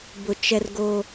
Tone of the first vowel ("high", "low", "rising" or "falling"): low